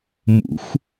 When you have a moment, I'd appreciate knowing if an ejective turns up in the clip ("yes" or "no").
no